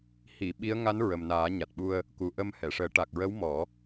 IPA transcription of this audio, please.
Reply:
h i˨˩˨ ɓ i˧˥ ə̯ ŋ a˧˥ n ɹ ə˨˩ m n aː˨˩˦ ɲ a˨˩ t̚ ɓ u˧ ə̯ | k u˨˩ ʔ ə˧ m h ɛ˨˩˨ ʂ əː˨˩˦ ʈ a˨˩ k̚ ɹ ə˧˥ w m ɔ˨˩˦

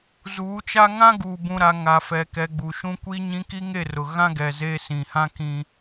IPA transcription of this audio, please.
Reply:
z uː˨˦ t͡ʃ a˦ ŋ ã˦ ɡ uː˨ b ũ˨ ɾ a˨ ŋ a˨ f ɛ˨ k ɛ˨ ɡ͡b u˨ ʃ ũ˦ kʷ iː˦ ɲ ĩ˦ k i˦ ŋ e˦˨ r ʊ˨ ɣ ã˦ ɡ ɛ˨ z e˦ s ĩ˨ h ã˦ k ĩ˦

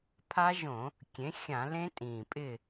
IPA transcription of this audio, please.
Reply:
pʰ a˦˥ ʒ õ˧˩˧ | kʲ ẽ˩˥ xʲ ã˧˩˧ l ẽ˦˥ tʼ ĩː˨˩ pʼ ɪː˥˨

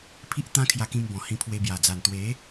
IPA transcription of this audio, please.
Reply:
pʰ i˦ ʔ t̪ ã˦ kʰ j a˧ k ĩ˧ m b ɔ̃˨˩ h ĩ˧ pʰ w e˧ b j a˨˩ d͡z a˨˩ n t̪ w e˨˦

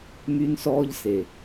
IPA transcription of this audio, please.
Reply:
m y˦ n s ɔː˦ ʎ s e˨

